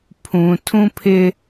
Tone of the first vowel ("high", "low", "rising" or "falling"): low